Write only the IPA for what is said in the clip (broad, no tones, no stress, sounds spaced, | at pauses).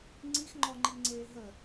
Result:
ŋ͡ǀ i x ŋ͡ǃ ɔ ŋ͡ǃ i ŋ͡ǀ eː ɦ ə